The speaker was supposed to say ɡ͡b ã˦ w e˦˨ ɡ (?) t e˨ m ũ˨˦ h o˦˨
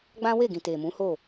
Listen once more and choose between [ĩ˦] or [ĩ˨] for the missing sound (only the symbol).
ĩ˨